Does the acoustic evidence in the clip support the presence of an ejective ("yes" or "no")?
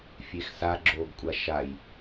yes